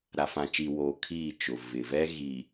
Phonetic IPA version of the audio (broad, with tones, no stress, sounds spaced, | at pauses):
ɾ a˨ f ã˨ t͡ʃ iː˨ w oː˨ kʰ iː˦˨ t͡ʃ ʊ˨ v ɪ˨ v ɛ˦ ɣ i˨